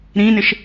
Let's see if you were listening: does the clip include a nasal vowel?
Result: yes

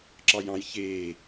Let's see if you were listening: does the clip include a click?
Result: yes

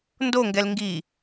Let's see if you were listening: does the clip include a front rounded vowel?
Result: no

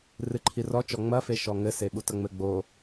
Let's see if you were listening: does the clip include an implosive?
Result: yes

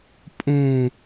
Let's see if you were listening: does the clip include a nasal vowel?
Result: yes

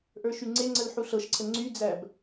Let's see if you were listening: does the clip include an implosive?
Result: no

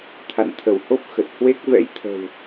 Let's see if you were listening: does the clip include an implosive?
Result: no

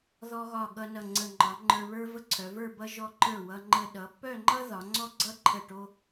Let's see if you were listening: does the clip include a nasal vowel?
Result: no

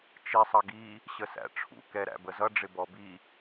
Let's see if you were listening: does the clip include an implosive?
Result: no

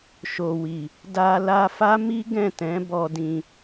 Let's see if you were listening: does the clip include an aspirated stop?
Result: no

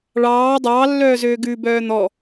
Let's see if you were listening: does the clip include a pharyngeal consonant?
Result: no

